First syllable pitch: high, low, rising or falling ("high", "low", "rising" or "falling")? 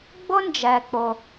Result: high